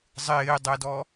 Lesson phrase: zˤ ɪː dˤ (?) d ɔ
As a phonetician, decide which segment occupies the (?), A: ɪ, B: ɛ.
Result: B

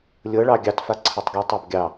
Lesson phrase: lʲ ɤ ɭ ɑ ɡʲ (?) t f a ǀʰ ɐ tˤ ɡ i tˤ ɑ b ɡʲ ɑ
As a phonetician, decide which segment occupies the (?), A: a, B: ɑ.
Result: B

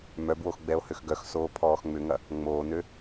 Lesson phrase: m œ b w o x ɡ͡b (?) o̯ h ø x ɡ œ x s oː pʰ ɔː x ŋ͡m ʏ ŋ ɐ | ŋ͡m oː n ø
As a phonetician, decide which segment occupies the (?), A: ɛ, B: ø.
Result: A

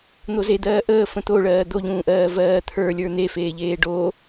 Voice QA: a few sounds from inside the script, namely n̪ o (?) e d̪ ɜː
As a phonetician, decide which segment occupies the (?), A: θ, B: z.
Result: B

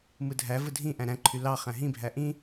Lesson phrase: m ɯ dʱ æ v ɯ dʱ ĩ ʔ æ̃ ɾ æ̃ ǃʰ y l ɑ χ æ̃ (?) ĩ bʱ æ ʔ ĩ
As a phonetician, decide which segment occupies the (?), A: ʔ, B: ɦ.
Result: B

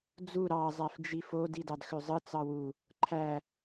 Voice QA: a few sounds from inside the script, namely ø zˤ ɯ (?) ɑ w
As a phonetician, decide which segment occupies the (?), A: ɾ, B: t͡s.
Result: B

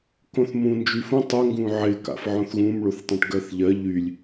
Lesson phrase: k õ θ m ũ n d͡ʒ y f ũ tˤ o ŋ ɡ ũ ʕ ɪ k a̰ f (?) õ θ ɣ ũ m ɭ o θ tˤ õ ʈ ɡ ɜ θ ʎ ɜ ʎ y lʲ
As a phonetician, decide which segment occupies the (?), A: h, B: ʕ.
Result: B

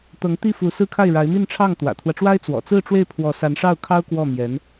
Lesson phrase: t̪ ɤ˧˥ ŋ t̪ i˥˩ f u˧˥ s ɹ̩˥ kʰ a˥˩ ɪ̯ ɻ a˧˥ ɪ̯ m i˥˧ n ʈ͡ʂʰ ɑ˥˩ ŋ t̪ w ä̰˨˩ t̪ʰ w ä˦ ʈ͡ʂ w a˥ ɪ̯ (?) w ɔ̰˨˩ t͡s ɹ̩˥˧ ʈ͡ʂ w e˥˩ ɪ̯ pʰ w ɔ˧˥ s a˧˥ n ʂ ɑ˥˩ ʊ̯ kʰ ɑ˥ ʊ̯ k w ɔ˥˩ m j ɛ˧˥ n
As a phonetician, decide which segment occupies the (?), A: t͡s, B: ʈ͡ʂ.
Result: A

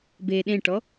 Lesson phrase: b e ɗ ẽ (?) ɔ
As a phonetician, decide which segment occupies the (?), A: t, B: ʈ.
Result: B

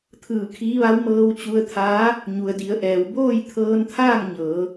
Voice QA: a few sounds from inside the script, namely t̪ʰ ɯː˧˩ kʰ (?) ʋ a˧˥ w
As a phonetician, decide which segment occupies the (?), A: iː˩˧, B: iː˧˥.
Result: B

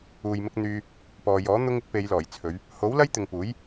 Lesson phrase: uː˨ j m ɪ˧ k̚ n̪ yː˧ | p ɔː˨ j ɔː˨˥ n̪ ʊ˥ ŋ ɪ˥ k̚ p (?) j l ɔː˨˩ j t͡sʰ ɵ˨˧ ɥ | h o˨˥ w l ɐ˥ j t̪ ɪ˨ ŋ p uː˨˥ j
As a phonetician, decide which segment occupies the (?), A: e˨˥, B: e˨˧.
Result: B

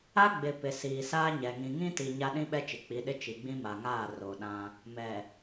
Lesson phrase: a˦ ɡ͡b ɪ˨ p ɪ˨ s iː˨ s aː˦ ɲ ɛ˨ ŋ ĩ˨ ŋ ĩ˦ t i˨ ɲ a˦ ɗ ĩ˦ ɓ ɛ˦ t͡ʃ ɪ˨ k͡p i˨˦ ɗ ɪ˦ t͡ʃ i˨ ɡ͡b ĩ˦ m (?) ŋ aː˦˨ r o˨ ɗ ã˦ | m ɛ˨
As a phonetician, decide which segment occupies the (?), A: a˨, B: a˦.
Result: A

